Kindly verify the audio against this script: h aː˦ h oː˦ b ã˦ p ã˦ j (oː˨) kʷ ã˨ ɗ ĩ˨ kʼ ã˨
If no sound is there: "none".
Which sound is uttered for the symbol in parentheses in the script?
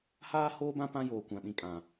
oː˨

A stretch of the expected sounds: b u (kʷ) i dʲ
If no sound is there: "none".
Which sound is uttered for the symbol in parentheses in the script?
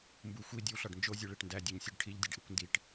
xʷ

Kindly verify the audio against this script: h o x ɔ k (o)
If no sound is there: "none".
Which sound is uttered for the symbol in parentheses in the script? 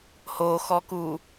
u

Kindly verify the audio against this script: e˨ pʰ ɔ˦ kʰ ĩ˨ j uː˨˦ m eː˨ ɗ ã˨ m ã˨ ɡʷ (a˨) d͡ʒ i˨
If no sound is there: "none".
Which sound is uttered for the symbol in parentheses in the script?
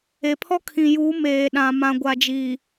a˨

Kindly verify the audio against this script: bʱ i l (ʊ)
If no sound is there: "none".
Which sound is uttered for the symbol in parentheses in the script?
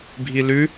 ʉ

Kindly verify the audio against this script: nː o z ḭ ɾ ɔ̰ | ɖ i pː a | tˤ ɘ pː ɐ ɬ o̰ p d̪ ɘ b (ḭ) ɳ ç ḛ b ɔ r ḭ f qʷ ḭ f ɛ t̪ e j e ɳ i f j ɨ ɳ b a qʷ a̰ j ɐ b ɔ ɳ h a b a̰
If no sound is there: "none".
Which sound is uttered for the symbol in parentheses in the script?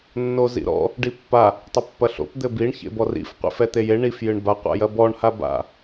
i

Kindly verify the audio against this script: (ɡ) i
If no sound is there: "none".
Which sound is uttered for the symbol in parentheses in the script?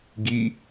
ɡ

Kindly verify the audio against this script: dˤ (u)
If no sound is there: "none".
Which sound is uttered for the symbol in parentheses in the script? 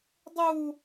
u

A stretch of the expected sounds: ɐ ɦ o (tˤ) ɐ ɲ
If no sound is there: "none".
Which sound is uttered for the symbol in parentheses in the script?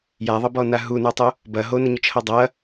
n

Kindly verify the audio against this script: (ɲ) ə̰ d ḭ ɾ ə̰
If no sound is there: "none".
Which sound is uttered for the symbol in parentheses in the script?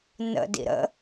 n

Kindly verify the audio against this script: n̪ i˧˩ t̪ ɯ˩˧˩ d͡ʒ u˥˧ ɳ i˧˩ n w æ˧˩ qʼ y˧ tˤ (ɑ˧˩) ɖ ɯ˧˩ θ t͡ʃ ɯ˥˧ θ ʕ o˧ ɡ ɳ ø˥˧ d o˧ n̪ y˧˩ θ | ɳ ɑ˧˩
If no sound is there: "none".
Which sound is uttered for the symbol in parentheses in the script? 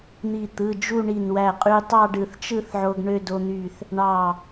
ɑ˥˧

